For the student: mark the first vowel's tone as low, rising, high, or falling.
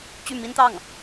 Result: falling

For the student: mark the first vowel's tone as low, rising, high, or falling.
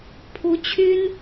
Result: rising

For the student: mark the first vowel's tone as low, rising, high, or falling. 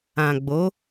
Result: low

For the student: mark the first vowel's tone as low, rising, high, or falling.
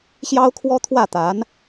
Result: high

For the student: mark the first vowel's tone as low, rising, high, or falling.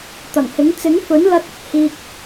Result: low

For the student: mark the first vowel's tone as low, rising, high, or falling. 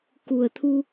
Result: low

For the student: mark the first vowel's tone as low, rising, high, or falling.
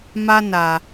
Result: high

